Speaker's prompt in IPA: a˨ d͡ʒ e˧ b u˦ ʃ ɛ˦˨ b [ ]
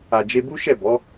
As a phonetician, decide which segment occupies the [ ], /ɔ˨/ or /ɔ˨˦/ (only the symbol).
ɔ˨˦